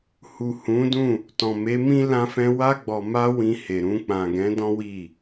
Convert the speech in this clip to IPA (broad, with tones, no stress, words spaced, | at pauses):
hu˨hũ˨˦dũ˦˨ | tɔ̃˨me˨˦mĩ˦ lã˧fɛ̃˧ wa˧ɡ͡bɔ˨ma˧ wĩ˧he˨ɾũ˧ k͡pã˨ɡɛ̃˨˦ dɔ̃˦wi˦˨